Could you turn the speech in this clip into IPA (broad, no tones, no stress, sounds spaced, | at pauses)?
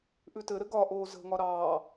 ʔ ʉ t ɘ ɾ ɘ ɡ ɒ ʔ oː z ə̤ ŋ ɒ ɾ ɑː